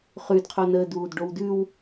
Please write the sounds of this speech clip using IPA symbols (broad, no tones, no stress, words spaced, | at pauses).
χʉdqʰonəː duːdɖowdʉw